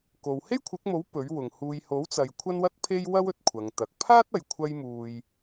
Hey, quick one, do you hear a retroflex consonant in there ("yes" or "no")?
no